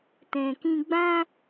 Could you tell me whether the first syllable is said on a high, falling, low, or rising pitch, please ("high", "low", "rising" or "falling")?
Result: low